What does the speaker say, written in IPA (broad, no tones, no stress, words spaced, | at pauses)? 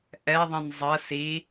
ʔɛðˤĩn zˤɜs i